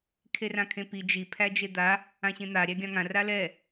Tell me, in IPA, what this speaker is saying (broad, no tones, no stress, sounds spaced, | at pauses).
kʰ e r ã kʰ ẽ p i d͡ʒ i pʰ æ d͡ʒ e d̪ a | ã ɕ ẽ n̪ a ɾʲ æ ɡʲ ã ŋ ã r a l ɛ